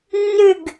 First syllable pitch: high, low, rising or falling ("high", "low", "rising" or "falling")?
falling